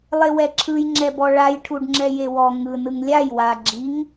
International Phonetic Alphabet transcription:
lˠewɛǁʰɯj ŋ͡ǁɛbɔɭaj ʈʰuɖŋ͡ǁɛjewɔ ŋɯ nɯŋlʲaj wa ɡ͡ǁiŋ

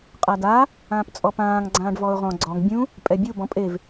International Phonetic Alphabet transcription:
qʼada | ãːpt͡sʼɔpãːŋ ɡ͡ǀãːɖvɔʊ̯ʁɔ̃ ɡ͡ǀɔŋ bʲũ | pʼɛbʲu bɔ̃pʼev

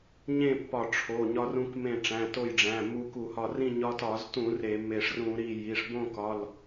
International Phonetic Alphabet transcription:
ɲẽ˥˨pːɒ˧˩ʈ͡ʂʰo˩˧˩ ɲɒ˧rũ˧k mẽ˧˩ʈ͡ʂæ̃˩˧˩ to˧˩jɖ͡ʐæ̃˩˧˩ mu˧ku˧˩˧hɒ˧˩rĩ˥˨ ɲɒ˧tɒ˧˩˧ztũ˧˩˧ re˧˩˧me˧˩ʂ rũ˧˩˧ɾi˧˩ ji˩˧˩ʂbõ˥˨kɒ˩˧˩l

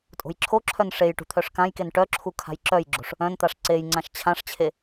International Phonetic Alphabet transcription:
tʼo̤jǁʰoǁʰœn ʂej ʈṳt̪ʰœʂkãjken ʈœǁʰu kʰa̤jǁœjɡ͡ǁo̤ʂ | œ̃nt̪aʂ ǀejŋ͡ǀãʃ t͡ɕʰãʂt͡ɕʰe

